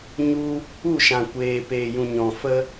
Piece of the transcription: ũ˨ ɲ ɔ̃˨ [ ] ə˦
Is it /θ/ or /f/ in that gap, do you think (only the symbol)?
f